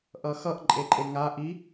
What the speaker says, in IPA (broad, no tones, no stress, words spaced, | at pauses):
ʔʌxʌʔ ǃʼeǃʼeŋa ʔi